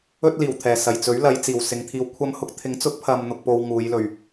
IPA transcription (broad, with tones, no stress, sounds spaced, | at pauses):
ɵ˥ t̚ l iː˨˩ w t̪ʰ ɛː˨˩ s ɐ˨˩ j t͡s ɵ˨˥ ɥ l ɐ˨˧ j t͡s iː˨˩ w s ɪ˨˧ ŋ t̪ʰ iː˧ w kʷʰ ɐ˥ m h ʊ˥ k̚ t̪ʰ ɪ˨˥ ŋ t͡s ʊ˨˥ k̚ pʰ ɐ˨ m n̪ ʊ˨ k̚ p o˧ w ŋ uː˨˧ j l ɵ˨ ɥ